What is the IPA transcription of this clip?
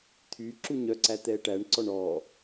t̪ʰy ǁuɲœǀæ t̪ɛʈæɳǀɔɳ ɔ

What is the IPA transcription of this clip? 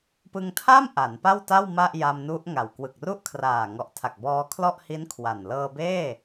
pɯ˧ŋtʰa˥˩m ʔa˩˦npa˥˩wta˥˩w ma˥˩ʔja˧mnu˦˥ʔ ŋa˨˩w kwɯ˨˩k̚ru˥˩ʔkʰraː˨˩ ŋɔ˨˩ʔtʰa˨˩k̚bɔː˧ kʰlɔ˥˩ʔhi˦˥n kʰwa˨˩n lɤː˧beː˥˩

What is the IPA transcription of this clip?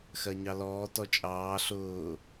xɜɲɑlɔː tɔt͡ʃʼɑː ɬʊː

